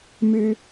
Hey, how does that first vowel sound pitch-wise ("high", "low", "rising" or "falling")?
low